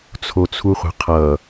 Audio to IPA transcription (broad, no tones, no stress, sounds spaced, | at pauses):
t͡sʰ o t͡sʰ u χʷ ə̤ qʰ ʌ